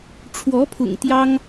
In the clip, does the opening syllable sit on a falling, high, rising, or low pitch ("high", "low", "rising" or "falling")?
rising